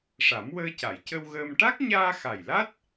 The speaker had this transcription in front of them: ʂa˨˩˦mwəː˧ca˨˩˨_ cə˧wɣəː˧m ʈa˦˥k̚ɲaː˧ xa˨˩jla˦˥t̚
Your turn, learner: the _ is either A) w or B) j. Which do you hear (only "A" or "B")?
B